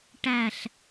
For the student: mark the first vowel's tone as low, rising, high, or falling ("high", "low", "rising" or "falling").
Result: falling